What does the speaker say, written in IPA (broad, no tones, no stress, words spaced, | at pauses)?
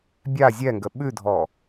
bʲa zʲɛŋɡə ɓʉdʱɔ